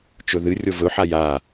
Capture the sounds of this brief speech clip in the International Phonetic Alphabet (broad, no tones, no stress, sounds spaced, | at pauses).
t͡ʃ ɵ ð ɨ rʲ o v ɵ ħ a j a